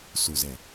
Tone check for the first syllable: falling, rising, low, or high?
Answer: low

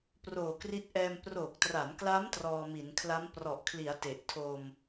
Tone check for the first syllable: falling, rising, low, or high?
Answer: low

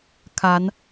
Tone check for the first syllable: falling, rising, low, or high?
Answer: rising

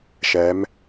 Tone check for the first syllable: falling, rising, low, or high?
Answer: rising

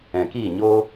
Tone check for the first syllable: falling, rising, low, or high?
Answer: low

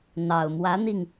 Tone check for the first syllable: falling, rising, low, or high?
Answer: low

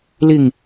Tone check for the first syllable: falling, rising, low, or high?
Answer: falling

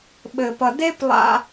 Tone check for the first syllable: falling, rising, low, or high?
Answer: low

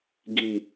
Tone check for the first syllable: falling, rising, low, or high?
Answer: low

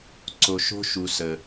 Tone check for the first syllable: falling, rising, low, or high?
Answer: low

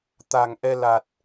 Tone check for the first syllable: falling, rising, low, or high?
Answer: low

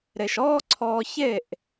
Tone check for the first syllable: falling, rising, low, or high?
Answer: low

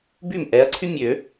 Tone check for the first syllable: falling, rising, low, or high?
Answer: falling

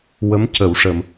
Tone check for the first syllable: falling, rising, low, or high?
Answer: rising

